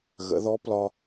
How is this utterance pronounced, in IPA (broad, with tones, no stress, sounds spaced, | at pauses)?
ɣ ə̰˩˧ ð ɔ˧˥ p l ɒ˧